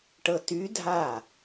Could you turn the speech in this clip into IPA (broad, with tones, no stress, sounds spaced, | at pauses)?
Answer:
ʈ ɤ˧ t y˧˥ dʱ a˥˩